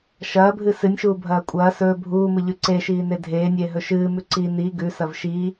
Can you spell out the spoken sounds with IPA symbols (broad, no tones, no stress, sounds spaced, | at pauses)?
ʃ ɐː bʱ ɨ s ɨ nʲ ʃ uː bʱ ɐː kʷʼ ɐː s ɵː bʱ uː m ɨ ʎ ʉ ǀ e ʃ iː n e dʱ eː nʲ eː ɦ ɵ ʃ ɨː m ʉ ǀ i n i ɡ ʉ s ɐ v ʃ i